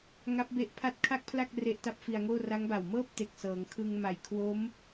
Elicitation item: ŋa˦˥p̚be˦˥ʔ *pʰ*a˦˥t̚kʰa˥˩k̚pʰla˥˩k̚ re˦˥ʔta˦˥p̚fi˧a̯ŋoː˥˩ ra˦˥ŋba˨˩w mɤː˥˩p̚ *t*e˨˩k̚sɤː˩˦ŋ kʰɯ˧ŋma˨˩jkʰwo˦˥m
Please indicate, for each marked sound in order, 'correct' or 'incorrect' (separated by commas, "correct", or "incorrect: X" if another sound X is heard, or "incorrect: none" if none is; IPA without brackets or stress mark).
correct, correct